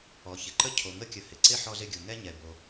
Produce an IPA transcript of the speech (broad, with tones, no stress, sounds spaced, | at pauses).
ɔ˩ ç ɪ˩ ǃ ə˥ cʰ o˩ ŋ ə˥ kʲ ə˩ h ɪ˩ ǀ ɪ˥ ħ ɔ˥ z ɪ˥ ɡʲ u˩ ŋ ɛ˥ ɲ ɛ˩ b o˩